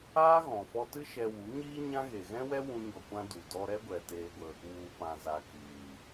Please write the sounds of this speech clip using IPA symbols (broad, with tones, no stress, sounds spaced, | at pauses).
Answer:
aː˦ ɣ ɔ̃˨ f ɔ˧ t ɨ˦ ʃ ɛ˧ w u˨˦ ɲ iː˦ ɲ ã˦ ɣ e˨ ɣ ɛ̃˦ w ɛ˦ w ũ˦ ɲ ɔ˧ kʷ ã˦ d u˨ d ɔ˧ ɾ ɛ˦ ɡʷ ɛ˨ t eː˦ ɡʷ ə˦ | w u˨ p ã˨ z a˨ k iː˨